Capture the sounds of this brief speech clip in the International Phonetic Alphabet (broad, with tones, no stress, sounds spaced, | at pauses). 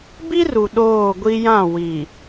b i˦ r u˨ ɗ oː˦˨ ɡʷ i˦ j ã˦˨ w i˨